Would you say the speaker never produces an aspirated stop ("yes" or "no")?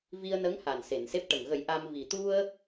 yes